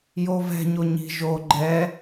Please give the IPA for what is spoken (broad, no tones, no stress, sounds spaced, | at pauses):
j o v ɛ̤ ɲ o ɲ i̤ ʒ o ɡ͡ǃ ɛ